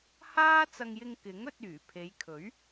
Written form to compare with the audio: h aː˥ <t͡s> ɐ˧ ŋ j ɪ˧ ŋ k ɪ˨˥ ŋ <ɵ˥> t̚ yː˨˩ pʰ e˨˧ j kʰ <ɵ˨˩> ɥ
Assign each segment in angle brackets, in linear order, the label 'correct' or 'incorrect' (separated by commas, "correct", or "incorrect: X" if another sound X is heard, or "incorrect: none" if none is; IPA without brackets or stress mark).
correct, incorrect: ɵ˧, incorrect: ɵ˨˥